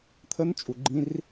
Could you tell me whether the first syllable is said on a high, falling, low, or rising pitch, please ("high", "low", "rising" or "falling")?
high